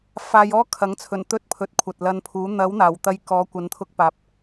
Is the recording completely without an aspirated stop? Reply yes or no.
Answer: no